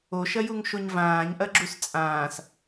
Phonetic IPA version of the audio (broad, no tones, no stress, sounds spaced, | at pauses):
o ʃ ɐ j u ŋ ʃ o ɲ v ãː ɲ ʔ ɐ ɡ͡ǁ u s t͡sʼ ãː s